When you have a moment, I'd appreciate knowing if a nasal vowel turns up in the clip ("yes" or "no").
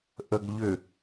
no